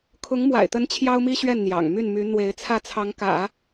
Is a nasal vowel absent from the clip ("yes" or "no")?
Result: yes